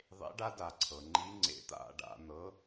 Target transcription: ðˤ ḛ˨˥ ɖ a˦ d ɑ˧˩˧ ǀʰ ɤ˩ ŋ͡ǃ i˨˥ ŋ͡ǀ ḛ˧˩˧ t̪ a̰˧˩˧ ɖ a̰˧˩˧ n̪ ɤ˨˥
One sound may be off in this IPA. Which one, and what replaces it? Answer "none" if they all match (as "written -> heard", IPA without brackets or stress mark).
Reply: ɑ˧˩˧ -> a˧˩˧